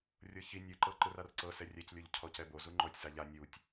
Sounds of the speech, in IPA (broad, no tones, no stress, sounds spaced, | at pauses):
rʲ ɤ ç i nʲ ɯ ǃ ɤ ǃ ɯ r a r ǀ ɤ s ɛ rʲ ɛ c lʲ o ʎ cʰ ɔ c ɛ b o z u ŋ͡ǃ ɔ tʲ s a ʎ a nʲ u tʲ